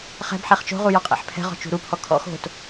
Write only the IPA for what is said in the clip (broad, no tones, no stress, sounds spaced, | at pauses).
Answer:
χ ɛ̤ b ħ ɛ χ t͡ʃ o̤ ʁ u j ɔ qʼ ɛ̰ ħ pʰ ɛ̤ ʁ ɔ̤ t͡ʃ ṳ ɾ u pʰ ɔ kʰ ɔ̰ x o̤ t